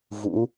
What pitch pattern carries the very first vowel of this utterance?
rising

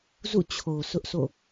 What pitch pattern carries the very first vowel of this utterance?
falling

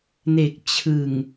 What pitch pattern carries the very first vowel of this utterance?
low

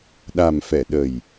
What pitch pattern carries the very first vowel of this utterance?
low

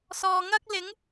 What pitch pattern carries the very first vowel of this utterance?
low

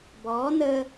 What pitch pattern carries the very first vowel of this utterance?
rising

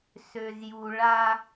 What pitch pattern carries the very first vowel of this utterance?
low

